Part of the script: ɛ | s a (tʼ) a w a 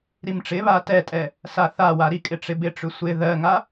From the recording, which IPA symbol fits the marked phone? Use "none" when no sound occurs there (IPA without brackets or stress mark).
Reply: θ